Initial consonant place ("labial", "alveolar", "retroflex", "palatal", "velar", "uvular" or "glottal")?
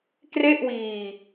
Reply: velar